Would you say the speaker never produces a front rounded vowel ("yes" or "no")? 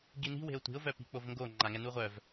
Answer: no